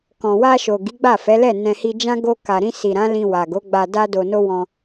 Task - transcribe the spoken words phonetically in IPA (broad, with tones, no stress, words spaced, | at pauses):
kɔ̃˨wa˧ʃo˨ ɡi˨˦ɡ͡ba˦˨fɛ˨˦ lɛ˦˨ nɛ̃˧hi˧ d͡ʒã˦ ɡo˧ka˨ɾĩ˧ si˨ɾã˨˦lĩ˧ wa˨ɡo˨˦ɡ͡ba˧ da˧do˨no˧ wɔ̃˧